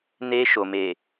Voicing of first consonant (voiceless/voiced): voiced